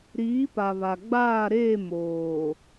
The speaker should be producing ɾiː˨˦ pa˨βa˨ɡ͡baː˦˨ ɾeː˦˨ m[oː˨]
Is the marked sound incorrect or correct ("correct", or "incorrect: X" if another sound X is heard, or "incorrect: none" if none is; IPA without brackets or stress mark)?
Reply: correct